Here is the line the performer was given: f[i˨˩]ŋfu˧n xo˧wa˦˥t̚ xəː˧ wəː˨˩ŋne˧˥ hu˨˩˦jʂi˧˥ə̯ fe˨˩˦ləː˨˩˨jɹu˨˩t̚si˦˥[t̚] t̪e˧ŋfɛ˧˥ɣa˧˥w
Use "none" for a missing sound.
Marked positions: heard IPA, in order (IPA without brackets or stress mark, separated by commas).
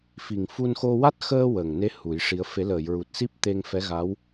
i˨˩, p̚